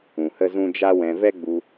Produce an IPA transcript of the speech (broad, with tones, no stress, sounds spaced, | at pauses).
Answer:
ũ˨ h ə˦ z ũ˦ d͡ʒ a˦ w ɛ̃˧ v ɛ˦ ɡ͡b u˧